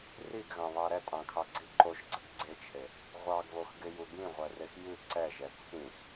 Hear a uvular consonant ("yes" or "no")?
yes